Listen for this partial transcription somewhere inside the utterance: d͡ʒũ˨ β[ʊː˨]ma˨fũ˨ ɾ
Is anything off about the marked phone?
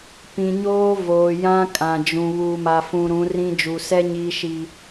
yes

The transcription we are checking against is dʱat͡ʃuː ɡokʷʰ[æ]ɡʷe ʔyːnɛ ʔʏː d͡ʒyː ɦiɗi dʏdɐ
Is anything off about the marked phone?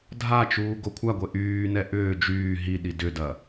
yes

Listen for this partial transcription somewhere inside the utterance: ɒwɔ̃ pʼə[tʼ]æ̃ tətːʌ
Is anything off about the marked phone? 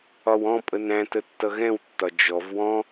yes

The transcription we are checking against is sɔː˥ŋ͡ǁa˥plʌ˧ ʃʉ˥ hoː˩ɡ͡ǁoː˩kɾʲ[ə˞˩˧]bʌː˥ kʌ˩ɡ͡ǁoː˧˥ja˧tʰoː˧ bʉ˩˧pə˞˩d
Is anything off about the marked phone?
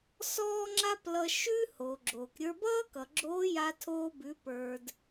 yes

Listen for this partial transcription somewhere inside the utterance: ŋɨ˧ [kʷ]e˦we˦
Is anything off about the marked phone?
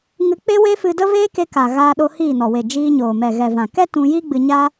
yes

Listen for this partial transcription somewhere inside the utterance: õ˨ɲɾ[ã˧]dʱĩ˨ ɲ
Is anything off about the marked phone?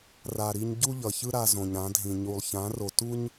yes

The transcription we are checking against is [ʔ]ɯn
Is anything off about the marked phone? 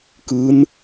yes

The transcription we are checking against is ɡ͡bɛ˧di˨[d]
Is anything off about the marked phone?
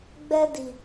yes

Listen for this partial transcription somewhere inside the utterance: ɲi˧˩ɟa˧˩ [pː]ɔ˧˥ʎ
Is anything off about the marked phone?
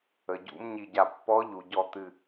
no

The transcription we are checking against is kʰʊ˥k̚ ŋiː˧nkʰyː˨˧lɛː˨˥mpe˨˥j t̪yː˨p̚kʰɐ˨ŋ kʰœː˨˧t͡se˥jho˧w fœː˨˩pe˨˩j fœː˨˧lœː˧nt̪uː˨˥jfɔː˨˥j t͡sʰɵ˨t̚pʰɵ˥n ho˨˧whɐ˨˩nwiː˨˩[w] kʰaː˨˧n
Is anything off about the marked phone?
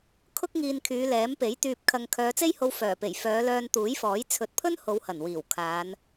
no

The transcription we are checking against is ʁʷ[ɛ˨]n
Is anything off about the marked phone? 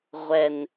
no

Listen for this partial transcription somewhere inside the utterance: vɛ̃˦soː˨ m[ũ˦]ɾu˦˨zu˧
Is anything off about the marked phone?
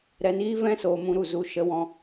yes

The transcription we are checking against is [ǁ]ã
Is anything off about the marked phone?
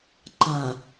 yes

